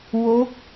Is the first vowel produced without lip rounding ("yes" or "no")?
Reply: no